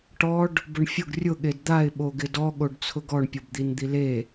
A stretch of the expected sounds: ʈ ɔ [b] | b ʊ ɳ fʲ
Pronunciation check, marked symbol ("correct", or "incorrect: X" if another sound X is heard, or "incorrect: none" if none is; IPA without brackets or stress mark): incorrect: ɖ